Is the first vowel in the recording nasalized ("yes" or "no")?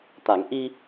no